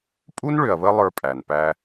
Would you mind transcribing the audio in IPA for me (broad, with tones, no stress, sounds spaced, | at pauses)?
pʼ u˥ n ɭ ʏ˨ ɐ̯ β ə˦ lˠ ə˞˦ pʼ æ˩ n p æ˦